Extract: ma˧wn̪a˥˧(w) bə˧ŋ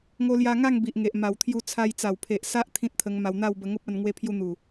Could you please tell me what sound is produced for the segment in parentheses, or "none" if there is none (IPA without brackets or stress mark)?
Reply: w